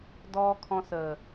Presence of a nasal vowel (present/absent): present